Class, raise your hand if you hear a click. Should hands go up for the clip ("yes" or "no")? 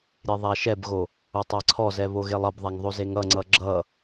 yes